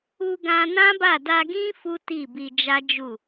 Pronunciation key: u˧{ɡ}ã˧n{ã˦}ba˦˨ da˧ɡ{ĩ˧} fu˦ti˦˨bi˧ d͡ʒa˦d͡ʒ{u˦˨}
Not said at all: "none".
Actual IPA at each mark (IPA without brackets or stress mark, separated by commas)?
ɡ, ã˦, ĩ˦, u˦˨